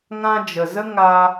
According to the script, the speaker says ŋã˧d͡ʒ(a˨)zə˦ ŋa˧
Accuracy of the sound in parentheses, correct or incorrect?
incorrect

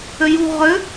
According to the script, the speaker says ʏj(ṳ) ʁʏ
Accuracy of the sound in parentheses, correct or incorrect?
correct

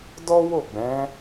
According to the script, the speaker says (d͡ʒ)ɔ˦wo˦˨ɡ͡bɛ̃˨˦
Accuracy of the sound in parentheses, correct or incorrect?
incorrect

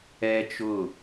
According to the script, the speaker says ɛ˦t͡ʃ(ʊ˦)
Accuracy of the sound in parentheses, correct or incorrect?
incorrect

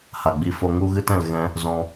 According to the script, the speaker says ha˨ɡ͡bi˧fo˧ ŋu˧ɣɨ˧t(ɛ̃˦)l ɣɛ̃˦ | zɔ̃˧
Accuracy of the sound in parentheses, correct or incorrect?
incorrect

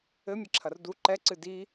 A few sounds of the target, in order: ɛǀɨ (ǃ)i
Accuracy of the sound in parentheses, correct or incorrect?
incorrect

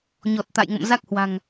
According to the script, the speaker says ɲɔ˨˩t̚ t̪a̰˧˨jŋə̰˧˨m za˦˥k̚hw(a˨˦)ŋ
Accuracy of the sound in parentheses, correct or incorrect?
incorrect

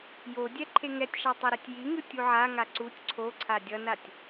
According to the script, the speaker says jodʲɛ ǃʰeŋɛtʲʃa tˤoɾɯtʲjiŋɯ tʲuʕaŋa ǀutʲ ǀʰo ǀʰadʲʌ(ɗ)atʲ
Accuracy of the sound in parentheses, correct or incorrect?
incorrect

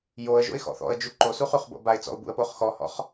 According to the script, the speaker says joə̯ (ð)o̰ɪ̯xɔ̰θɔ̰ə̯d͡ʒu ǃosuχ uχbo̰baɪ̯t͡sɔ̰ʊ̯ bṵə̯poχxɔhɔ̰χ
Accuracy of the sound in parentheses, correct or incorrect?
incorrect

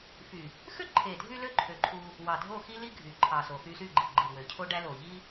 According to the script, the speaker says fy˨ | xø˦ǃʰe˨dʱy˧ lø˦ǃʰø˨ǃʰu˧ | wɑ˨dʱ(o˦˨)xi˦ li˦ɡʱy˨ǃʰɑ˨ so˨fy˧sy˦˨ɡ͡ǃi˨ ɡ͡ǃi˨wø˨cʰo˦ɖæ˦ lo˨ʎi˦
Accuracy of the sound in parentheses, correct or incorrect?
correct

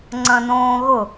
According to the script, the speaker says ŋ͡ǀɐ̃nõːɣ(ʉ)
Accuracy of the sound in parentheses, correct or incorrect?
incorrect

